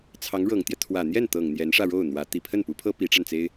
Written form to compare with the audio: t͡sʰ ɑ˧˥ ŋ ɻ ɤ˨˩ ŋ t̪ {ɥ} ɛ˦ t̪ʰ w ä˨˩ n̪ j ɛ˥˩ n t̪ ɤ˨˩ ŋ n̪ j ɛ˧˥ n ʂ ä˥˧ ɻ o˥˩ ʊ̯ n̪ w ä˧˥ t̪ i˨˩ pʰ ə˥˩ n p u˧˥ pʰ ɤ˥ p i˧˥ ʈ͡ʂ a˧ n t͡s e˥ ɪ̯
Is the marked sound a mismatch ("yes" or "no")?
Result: yes